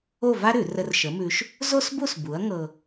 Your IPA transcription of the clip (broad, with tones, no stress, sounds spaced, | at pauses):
o˥˧ v a˥ ɾ ʉ˧˩˧ r ə˧ r ʃ ə˨˥ m ʉ˧ ʃ | z o˥ s b u˥˧ s b u˨˥ ɐ̯ ŋ ɤ˧